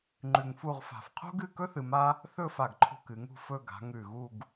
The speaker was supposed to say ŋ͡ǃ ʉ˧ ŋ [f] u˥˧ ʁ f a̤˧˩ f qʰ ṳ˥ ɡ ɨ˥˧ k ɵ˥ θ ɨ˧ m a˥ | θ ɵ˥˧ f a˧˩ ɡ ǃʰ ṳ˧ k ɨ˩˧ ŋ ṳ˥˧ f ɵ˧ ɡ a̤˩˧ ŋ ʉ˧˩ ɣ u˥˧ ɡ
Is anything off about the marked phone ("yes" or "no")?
no